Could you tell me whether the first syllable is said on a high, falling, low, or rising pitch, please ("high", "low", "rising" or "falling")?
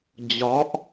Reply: rising